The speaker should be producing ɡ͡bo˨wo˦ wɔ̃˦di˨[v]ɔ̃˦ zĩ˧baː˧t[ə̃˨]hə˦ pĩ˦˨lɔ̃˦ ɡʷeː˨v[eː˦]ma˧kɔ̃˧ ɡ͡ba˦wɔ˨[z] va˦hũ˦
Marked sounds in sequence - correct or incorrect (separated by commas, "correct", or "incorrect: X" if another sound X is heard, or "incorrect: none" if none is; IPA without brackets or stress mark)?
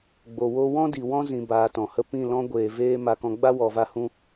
incorrect: w, incorrect: ɔ̃˨, correct, incorrect: none